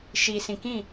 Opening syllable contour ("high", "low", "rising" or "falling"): low